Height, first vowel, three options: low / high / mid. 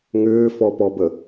high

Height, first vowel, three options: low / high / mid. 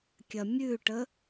low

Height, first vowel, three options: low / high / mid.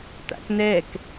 low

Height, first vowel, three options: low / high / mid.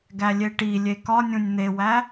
low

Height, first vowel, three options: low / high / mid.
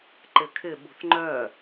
high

